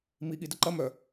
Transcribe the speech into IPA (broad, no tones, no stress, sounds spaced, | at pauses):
m i ɠ i d ə ǃ ɐ m œ